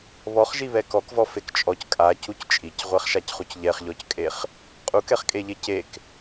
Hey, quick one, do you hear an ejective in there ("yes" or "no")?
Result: yes